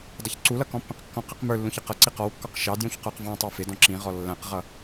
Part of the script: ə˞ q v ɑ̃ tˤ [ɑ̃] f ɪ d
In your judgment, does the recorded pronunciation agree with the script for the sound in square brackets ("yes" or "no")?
no